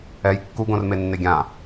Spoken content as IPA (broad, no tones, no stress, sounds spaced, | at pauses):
ɛ j kː u ɡ õ r m e nː e ɡʲ ã